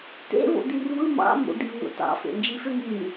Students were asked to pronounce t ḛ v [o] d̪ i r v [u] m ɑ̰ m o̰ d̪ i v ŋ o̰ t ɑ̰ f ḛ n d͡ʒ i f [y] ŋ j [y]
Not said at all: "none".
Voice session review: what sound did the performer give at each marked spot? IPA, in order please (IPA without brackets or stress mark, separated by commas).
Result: o̰, ɯ, ø, y